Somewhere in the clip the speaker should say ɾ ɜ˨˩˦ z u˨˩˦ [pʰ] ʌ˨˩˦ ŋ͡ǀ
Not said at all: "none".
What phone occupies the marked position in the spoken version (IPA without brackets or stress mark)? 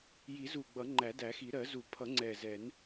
pʰ